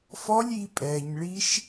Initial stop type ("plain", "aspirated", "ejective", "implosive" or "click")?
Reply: ejective